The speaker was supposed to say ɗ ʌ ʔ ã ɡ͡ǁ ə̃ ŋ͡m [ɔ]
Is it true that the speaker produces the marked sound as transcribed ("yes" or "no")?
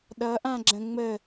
no